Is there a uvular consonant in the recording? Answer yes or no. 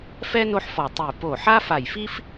no